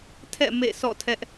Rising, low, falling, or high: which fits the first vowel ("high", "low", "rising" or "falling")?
falling